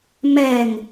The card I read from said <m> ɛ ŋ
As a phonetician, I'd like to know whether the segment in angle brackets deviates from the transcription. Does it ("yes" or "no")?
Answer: no